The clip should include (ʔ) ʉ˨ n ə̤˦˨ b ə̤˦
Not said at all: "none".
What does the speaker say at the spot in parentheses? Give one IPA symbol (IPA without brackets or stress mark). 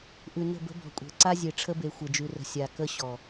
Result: ʔ